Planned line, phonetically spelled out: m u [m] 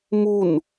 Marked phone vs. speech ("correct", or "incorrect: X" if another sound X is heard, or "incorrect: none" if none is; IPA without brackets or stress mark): incorrect: n